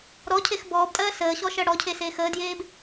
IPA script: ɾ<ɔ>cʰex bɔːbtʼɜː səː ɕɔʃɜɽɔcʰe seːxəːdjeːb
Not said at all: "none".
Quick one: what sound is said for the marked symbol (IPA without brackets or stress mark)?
ɔ